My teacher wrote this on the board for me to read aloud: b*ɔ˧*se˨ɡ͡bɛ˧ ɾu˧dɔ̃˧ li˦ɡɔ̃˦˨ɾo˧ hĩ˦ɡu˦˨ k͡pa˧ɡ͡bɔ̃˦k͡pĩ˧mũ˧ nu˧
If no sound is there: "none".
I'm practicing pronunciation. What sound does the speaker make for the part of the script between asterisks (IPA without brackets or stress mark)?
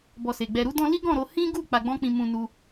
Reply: ɔ˧